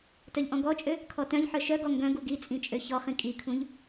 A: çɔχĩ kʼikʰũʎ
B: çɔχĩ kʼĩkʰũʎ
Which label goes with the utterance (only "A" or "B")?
A